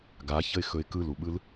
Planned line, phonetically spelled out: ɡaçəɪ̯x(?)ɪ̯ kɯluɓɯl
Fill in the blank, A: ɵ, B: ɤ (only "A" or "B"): A